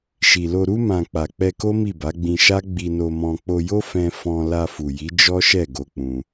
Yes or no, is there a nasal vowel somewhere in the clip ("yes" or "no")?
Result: yes